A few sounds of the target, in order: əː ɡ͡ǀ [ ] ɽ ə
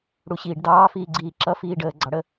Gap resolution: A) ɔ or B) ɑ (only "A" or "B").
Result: B